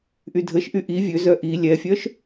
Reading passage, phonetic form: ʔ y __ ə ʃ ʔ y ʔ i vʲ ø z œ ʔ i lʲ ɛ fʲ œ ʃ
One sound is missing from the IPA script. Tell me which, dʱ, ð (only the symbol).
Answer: dʱ